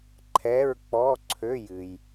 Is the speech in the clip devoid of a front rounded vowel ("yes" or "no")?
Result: no